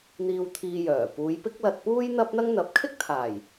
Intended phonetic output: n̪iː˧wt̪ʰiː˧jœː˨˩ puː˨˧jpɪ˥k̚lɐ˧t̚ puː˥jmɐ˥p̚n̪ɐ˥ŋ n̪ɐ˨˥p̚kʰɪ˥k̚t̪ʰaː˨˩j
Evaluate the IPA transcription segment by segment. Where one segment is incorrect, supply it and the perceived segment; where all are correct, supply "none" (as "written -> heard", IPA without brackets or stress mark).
m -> n̪